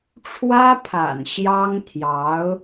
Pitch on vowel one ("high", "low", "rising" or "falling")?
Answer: high